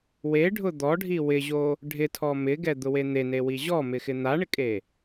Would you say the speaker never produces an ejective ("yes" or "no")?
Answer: no